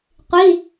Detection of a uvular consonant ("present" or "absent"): present